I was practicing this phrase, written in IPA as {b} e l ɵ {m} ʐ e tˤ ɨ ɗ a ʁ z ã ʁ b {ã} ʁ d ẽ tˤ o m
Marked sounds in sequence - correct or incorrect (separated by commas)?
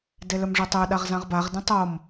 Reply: incorrect, correct, incorrect